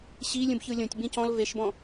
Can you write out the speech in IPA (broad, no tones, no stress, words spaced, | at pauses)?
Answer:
ɕilʲũbçɯ lʲõtʲ bĩcɔ̃l veʃbɔ̃